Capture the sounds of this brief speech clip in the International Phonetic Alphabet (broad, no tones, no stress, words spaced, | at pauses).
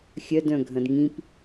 xʲœd œ̃ɡʱɐ̃dŋĩp